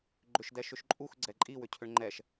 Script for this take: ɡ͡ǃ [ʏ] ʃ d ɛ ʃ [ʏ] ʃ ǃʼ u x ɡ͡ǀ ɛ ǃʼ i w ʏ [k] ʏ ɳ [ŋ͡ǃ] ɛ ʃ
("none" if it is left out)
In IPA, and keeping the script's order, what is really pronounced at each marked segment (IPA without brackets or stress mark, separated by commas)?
ʏ, ʏ, cʰ, ŋ͡ǃ